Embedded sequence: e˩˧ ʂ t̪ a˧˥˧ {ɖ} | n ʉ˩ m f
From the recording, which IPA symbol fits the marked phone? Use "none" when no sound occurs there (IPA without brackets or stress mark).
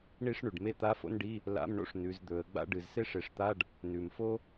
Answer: ɖ